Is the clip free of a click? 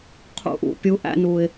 yes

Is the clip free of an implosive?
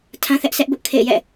yes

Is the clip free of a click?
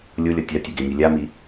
yes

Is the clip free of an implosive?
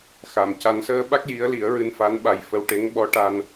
no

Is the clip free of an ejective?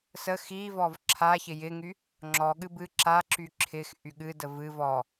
yes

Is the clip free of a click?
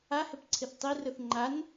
no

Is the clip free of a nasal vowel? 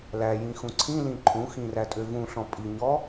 no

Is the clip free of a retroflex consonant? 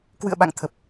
yes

